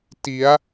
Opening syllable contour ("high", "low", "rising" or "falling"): rising